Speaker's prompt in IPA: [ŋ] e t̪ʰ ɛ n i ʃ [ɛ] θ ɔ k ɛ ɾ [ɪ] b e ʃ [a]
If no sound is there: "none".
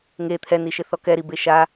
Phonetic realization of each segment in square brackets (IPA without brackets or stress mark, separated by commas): ŋ, ɪ, i, a